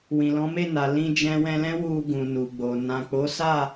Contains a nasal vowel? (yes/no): yes